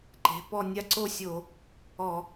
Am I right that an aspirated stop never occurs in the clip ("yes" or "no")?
yes